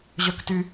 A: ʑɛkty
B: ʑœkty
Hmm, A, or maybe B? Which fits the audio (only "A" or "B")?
B